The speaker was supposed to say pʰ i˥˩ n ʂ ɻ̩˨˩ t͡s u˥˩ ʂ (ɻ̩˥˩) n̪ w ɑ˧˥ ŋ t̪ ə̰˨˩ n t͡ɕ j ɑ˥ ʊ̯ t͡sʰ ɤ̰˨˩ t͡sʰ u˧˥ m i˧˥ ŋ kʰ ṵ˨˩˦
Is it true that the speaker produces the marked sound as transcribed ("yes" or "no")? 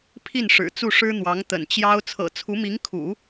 no